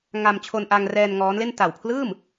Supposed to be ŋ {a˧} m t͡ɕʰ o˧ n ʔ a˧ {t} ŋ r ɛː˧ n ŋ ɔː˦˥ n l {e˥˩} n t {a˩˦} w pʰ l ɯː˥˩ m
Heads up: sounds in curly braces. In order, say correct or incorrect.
correct, incorrect: none, correct, incorrect: a˨˩

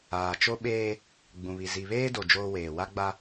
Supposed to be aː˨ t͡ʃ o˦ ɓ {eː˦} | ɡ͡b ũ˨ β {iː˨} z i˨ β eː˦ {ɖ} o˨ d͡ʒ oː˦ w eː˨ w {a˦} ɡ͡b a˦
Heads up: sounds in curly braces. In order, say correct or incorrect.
correct, incorrect: i˨, incorrect: d, correct

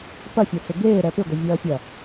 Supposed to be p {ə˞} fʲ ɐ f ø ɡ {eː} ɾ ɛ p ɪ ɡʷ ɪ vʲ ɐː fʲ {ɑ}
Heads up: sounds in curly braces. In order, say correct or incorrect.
incorrect: ɐ, correct, incorrect: ɐ

